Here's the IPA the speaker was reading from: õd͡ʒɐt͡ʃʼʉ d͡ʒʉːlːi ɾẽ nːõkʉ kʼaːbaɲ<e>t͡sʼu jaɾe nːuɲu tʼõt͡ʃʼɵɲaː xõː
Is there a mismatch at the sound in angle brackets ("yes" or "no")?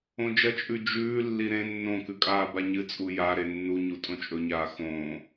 yes